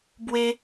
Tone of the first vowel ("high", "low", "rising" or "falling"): high